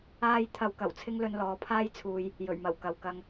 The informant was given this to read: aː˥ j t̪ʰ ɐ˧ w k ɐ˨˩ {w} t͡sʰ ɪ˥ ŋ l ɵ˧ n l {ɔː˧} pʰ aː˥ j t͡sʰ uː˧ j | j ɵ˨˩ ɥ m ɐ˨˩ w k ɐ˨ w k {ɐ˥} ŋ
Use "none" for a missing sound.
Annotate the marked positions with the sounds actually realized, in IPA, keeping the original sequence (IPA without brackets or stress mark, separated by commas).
w, ɔː˨˧, ɐ˧